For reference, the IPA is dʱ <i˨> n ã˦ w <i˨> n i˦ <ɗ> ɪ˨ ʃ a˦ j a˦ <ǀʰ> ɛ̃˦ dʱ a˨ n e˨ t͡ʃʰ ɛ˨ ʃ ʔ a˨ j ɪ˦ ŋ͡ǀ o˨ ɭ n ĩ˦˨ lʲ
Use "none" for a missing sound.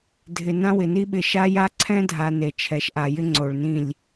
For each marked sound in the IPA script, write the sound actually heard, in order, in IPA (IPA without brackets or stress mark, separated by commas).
ɪ˨, ɪ˨, ɓ, ǀʰ